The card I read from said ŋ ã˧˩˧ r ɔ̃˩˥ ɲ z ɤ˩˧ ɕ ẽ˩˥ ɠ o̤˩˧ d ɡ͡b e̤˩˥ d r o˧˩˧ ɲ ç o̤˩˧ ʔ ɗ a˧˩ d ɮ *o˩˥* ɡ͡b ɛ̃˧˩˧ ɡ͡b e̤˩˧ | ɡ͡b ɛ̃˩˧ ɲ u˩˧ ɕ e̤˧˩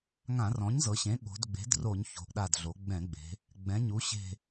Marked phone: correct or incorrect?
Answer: incorrect